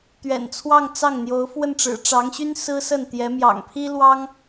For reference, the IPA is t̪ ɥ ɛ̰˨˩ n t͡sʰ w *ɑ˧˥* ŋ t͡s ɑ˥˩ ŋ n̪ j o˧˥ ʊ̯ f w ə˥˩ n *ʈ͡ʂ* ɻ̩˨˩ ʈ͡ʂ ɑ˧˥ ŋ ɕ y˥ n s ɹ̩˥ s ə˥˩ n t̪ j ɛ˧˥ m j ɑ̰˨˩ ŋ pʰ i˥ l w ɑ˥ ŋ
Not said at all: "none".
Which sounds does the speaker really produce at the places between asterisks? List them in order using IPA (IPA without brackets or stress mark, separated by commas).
ɑ˥˧, ʈ͡ʂ